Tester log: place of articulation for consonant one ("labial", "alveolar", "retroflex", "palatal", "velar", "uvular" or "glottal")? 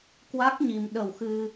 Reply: velar